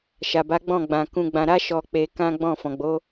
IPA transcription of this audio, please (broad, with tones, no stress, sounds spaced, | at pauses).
ʃ a˨ b a˨˦ ɡ͡b ɔ̃˦˨ ɡ͡b ã˨ k ũ˧ ɡ͡b ã˨ ɾ a˨˦ ʃ ɔ˧ k͡p e˧ k ã˦ ɡ͡b ɔ̃˦˨ f ɔ̃˨ ɡ͡b o˨˦